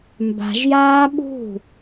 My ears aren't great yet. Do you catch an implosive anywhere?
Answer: yes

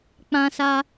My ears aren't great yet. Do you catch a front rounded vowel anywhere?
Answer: no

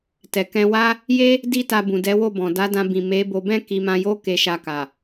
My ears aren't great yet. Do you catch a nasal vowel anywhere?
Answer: yes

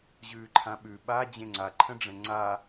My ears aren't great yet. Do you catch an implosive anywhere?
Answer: yes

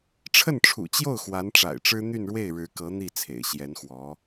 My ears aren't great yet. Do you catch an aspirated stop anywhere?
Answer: yes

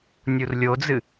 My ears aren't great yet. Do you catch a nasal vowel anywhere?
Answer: no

